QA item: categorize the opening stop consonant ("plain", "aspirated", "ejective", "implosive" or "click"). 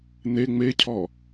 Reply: aspirated